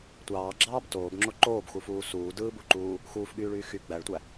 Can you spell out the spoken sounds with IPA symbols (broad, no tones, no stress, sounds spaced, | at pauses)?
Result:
tʷ ɑː ɡ͡ǁ ɑː b t oː b ŋ͡ǁ o ǃ oː b x u f uː s uː d ɯː b u ǃ uː | x uː f ɠ yː ɭ yː x y ɡ͡b æ ɭ tʷ æ